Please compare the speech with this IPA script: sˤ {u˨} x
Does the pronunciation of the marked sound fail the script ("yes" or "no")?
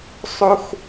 yes